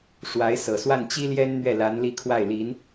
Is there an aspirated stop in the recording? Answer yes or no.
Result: yes